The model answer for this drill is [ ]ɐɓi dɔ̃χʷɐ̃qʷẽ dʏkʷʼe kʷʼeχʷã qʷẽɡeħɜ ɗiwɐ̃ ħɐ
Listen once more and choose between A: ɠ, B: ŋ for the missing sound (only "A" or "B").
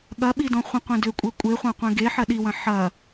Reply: A